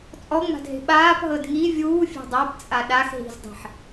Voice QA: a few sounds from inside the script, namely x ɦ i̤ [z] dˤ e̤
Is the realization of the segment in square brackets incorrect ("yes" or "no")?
no